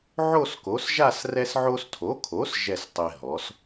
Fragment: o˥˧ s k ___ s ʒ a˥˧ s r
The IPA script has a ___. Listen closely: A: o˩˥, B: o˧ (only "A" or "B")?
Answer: A